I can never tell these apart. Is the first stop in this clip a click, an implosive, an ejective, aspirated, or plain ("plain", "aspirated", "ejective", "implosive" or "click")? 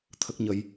aspirated